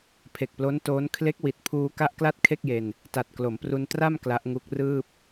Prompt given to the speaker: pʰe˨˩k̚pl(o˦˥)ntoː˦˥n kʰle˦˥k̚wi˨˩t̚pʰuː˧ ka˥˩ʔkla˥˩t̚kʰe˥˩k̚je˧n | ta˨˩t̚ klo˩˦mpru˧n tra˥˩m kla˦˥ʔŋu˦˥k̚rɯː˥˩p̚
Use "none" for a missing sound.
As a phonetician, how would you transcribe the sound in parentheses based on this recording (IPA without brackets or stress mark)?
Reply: o˦˥